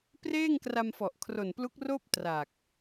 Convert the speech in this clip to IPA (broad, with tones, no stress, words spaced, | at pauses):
preː˥˩ŋkra˧mfɔ˨˩ʔ kʰro˨˩nplu˦˥k̚roː˥˩p̚ tra˨˩k̚